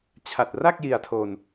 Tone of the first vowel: low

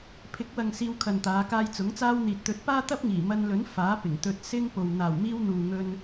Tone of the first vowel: rising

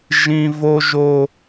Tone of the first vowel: high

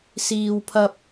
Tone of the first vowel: low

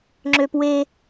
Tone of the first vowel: high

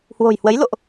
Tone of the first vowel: low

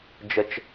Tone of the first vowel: high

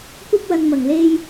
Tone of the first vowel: high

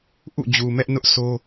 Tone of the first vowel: falling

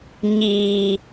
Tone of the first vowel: low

